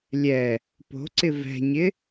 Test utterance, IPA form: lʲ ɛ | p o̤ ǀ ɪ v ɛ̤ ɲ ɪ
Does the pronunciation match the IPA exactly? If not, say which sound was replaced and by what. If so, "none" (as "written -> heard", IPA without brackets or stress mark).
none